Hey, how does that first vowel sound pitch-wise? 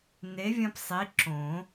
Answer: rising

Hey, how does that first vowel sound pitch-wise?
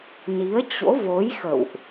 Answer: rising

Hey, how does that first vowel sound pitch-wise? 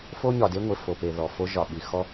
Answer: high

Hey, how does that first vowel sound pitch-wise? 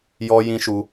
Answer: high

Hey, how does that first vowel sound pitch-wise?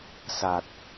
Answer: low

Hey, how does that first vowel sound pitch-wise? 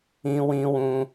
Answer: high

